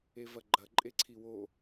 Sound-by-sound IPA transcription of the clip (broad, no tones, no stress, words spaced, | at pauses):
evɐɡ͡ǃɐ ǃʼeǀʰiwo